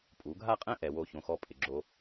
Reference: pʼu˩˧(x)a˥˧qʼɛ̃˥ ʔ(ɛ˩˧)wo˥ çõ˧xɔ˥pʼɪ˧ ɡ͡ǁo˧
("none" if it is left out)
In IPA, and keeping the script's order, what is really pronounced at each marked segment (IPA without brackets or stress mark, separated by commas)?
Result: ɡʱ, ɛ˩˧